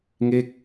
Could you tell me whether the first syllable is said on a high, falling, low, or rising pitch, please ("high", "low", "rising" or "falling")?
falling